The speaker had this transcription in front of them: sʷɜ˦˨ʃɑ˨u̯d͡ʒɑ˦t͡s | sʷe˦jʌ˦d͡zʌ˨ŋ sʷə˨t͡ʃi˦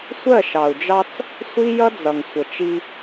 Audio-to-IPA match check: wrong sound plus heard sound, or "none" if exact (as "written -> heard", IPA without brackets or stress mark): e˦ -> i˦